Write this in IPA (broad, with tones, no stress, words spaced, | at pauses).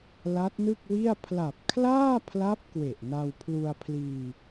la˦˥t̚nɯ˥˩k̚wi˥˩a̯ pʰla˨˩p̚kʰlaː˥˩pʰla˦˥p̚ kwe˨˩ʔna˧wpʰlu˧a̯pʰliː˧